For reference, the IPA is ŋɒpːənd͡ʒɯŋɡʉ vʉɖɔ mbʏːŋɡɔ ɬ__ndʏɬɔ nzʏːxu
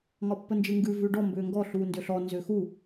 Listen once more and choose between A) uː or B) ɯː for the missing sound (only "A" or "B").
A